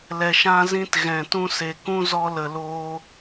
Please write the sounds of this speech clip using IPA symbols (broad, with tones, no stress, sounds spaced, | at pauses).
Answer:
l ɛ˨ ʃ ã˧ z ĩ˧ t ɣ ɛ̃˨ t ũ˧ s e˨ k ũ˦ z ɔ˧ l ə˨ l oː˧